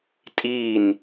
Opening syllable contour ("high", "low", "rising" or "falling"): falling